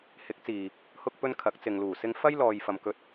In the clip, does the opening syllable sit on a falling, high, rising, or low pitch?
rising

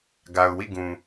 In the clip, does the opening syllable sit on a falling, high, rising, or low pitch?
low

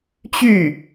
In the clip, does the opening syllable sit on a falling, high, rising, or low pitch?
falling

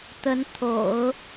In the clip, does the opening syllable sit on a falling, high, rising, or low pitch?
rising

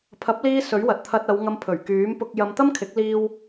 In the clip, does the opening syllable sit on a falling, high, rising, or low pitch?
rising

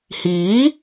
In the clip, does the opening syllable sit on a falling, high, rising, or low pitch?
rising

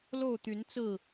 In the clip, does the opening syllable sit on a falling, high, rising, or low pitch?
falling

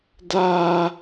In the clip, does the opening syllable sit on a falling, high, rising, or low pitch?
high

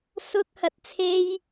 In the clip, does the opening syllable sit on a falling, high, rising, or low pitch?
high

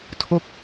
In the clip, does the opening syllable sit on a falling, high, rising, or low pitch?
falling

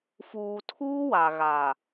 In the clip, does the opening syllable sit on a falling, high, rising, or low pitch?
low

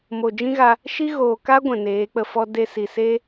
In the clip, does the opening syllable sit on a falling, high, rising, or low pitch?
low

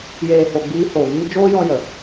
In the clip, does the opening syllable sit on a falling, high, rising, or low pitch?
low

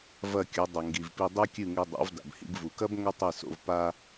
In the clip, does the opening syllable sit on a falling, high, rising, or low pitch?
falling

